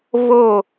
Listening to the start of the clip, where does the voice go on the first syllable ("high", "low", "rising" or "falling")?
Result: falling